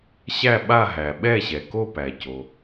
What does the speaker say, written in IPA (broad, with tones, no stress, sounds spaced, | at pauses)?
ɕ æ˥˧ ɓ a˥˧ ɦ æ˩ ɓ ɛ˥˧ ɕ ɛ˩ k o˥˧ p æ˩ c o˩